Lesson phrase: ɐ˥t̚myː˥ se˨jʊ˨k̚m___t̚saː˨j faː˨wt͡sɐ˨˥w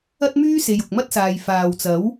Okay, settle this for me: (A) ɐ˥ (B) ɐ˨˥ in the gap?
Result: A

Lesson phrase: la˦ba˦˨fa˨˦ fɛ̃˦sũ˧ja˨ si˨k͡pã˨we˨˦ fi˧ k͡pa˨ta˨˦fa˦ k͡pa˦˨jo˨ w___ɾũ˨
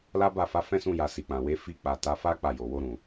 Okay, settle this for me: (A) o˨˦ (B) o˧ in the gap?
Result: B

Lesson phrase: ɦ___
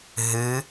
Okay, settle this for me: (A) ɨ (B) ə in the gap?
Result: A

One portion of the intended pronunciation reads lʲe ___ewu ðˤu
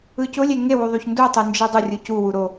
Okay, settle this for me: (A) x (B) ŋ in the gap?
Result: B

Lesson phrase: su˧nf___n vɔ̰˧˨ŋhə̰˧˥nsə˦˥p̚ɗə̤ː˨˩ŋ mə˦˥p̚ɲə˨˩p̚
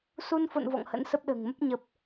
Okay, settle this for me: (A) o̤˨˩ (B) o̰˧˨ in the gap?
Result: B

